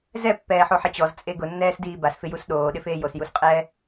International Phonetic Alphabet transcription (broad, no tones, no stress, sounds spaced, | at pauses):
z ɛ pː ɛː ħ o ħ ɛ t͡ɕ ɔ z t͡sʼ e ɡ ʊ nː ɛː s d iː b a s f ɪ j u s ɗ oː ɗ ɪ f eː j o s j u s qʼ ɛː